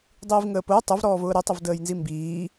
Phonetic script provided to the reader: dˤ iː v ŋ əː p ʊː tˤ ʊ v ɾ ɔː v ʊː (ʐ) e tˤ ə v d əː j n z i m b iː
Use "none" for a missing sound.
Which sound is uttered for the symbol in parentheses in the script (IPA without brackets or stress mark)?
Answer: ɾ